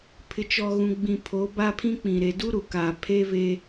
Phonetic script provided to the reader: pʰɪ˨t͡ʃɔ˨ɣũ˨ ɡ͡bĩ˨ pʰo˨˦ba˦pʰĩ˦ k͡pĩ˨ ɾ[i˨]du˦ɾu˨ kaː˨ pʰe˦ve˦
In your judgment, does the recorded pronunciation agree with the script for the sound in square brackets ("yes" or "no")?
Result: no